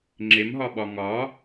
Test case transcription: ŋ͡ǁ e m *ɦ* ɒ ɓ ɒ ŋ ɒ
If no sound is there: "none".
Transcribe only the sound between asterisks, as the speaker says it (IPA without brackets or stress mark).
ɦ